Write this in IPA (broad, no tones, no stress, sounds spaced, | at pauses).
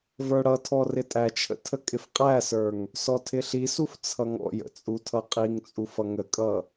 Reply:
v ə˞ ɽ ʌ tʰ ɔ r ɪ tʼ æ t͡ʃʰ ə̰ tʰ ə kʼ ɪ f qʼ æ s ə˞ ŋ | s ɔ tʰ ɪ ɬ i s u f t͡sʰ ʌ ŋ ɔ̰ j ə̰ t͡sʼ u tʰ ʌ qʼ i ŋ t͡sʼ u f ʌ ŋ ə kʼ ʌ